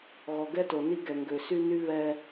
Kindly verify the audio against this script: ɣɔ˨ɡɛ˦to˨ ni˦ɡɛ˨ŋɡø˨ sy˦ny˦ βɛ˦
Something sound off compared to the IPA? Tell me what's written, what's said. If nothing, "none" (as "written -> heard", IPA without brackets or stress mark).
none